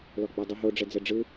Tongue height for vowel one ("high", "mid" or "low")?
mid